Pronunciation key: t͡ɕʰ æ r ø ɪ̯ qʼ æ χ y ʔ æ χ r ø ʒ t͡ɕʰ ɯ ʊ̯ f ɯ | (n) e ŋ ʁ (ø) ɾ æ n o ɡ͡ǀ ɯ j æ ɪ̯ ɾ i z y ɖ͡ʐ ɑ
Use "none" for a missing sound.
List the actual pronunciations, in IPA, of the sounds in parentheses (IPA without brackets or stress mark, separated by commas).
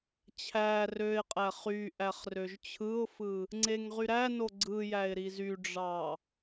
ŋ͡ǀ, y